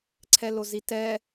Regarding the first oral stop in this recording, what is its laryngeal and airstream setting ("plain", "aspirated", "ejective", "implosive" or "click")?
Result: click